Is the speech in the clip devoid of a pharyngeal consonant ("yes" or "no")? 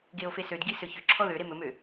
yes